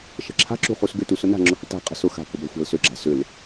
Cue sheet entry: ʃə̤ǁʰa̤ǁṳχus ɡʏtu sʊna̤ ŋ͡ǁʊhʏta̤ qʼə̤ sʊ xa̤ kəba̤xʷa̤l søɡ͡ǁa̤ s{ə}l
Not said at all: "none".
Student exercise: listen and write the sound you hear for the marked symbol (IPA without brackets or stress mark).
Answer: ʏ